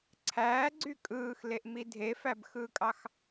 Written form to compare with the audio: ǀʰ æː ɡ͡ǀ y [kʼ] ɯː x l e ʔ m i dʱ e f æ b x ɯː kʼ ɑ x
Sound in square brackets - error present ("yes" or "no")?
no